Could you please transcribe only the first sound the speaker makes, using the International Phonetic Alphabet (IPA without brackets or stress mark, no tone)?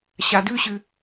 ɕ